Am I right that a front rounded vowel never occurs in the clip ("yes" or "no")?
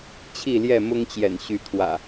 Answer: no